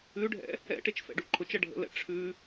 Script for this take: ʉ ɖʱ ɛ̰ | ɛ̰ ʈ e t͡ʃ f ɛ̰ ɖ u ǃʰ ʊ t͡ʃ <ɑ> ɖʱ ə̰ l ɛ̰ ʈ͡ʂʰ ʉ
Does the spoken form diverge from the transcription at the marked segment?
yes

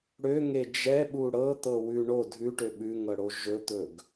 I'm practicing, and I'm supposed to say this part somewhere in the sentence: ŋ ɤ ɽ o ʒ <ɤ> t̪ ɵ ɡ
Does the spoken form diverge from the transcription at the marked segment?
yes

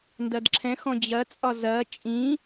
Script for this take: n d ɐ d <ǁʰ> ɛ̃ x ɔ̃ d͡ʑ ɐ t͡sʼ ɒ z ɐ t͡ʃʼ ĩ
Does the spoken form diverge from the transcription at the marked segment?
no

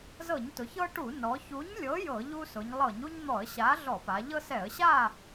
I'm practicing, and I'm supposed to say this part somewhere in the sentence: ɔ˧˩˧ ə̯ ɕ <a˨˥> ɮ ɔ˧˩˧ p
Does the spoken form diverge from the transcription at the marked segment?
no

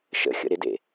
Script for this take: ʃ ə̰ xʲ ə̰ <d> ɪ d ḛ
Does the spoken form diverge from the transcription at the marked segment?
yes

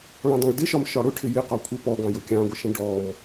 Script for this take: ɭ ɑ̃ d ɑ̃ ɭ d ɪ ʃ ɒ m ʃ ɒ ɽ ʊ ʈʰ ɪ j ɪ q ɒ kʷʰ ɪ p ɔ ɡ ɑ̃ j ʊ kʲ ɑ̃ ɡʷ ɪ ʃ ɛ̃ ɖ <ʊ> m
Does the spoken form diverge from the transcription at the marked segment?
yes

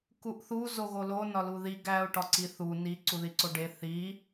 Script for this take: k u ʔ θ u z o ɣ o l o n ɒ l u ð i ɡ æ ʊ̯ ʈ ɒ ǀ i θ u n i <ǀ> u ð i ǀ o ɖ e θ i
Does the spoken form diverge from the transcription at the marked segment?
no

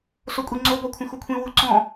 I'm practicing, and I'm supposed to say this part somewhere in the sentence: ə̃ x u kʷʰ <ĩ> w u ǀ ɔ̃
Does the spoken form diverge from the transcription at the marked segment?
no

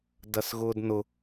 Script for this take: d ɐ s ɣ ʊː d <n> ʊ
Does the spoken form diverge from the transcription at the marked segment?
no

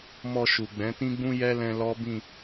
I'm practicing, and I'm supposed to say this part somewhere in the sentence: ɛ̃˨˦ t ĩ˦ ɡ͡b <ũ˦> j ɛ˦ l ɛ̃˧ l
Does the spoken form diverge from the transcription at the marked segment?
no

